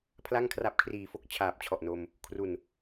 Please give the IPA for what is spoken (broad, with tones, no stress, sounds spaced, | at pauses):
pʰ l a˥˩ ŋ kʰ r a˦˥ p̚ kʰ r iː˨˩ f o˥˩ k̚ t͡ɕʰ aː˨˩ p̚ t͡ɕʰ ɔ˨˩ ʔ n o˧ m | kʰ r u˨˩ n